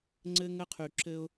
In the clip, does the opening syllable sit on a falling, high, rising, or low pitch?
high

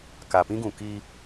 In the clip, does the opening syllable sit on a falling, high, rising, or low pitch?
low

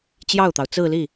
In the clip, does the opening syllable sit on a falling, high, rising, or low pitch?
falling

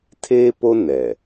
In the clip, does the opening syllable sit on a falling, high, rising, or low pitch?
high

